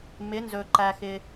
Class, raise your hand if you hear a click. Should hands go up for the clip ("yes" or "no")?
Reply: yes